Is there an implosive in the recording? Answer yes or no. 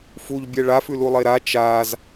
no